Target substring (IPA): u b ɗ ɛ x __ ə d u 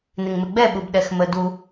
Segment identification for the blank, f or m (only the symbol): m